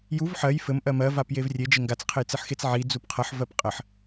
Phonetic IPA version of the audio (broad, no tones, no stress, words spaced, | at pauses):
juv ħɜj fɘm ʔɜmɜ vapjevrʲe d͡ʒeŋɡat͡s qʰɘjt͡sɘħxet͡sʕi d͡zupqʰʌħ vɜpqʼəħ